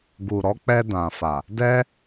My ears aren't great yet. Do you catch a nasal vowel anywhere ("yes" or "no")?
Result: yes